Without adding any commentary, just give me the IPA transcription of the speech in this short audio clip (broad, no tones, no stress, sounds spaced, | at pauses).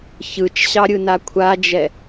ç ɯ t͡ʃ ɕ ɑ ɾʲ ɯ n a kʷʰ a d͡ʒ ɛ